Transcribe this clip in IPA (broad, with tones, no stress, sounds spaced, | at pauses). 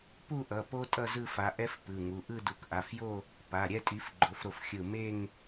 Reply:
p u˥˧ ʔ ʌ˩˧˩ p o˥ tʼ ʌ˥˧ z ɯ˥˧ f a˨˦ ʔ ɛ˥ f p ɯ˩˧˩ ŋ u˩˧˩ ʔ ɯ˥˧ d u˧˩ k ʔ a˩˧˩ f j o˥˧ | p a˩˧˩ ɾʲ ɛ˥˧ tʼ i˨˦ f ɡ͡ǃ o˨˦ f ɾ o˧˩ f xʲ ɯ˧˩ m e˥˧ ŋ